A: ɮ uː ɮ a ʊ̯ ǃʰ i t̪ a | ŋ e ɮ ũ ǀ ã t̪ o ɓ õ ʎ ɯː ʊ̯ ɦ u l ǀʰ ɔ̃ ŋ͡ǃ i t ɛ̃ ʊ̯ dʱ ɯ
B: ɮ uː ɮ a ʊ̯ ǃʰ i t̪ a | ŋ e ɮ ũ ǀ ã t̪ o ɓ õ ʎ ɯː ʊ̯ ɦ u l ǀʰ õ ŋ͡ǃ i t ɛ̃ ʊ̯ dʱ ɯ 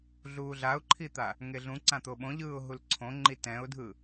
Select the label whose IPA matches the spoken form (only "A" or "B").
B